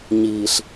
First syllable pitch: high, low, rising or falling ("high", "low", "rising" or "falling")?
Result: low